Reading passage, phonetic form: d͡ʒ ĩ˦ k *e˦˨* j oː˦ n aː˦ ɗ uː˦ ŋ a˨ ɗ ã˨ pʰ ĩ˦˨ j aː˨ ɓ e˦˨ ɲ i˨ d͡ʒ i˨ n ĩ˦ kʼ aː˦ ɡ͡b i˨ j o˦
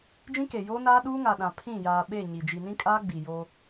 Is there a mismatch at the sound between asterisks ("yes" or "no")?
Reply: yes